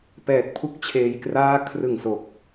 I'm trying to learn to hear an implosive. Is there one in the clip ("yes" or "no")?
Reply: no